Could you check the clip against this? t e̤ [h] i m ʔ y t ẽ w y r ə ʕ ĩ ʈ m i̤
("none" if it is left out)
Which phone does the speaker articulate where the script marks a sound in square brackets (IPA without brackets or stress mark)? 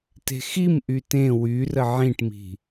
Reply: x